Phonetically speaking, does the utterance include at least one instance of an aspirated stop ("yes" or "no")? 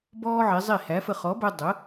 no